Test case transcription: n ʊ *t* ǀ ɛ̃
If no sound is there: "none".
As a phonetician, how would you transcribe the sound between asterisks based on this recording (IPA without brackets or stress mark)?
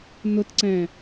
t